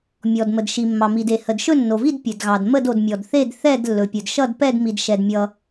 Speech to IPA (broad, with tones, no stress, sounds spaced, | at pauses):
mʲ ɔ˩ d m ə˩ d ʃ i˩ mː ɑ˩ m i˩ d e˩ h ə˩ d ʃ ɵ˥˨ nː o˩ v i˥˨ d pʲ ɵ˩ d ɣ ɑ˩ d m ə˥˨ d o˩ d mʲ ɔ˩ d θ e˥˨ d θ ɛ˥˨ d lː ɵ˩ pʲ ɵ˩ d ʃ ʌ˥˨ d p ɛ˥˨ d m i˩ d ʃ ɛ˩ d mʲ ʌ˩